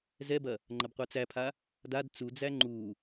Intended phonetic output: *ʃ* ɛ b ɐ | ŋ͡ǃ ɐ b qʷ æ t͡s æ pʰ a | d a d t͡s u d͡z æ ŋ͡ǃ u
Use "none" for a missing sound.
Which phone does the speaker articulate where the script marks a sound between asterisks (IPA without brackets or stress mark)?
z